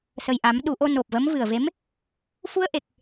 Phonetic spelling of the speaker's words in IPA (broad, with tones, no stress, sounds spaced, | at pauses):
s ə˨˩ j ʔ a˨˩˦ m ɗ u˨˩˦ ʔ o˧ n o˨˩ p̚ v ə˧˥ m v ɨ˨˩ ə̯ v e˧˥ m | f u˧ ə̯ ʔ e˨˩ k̚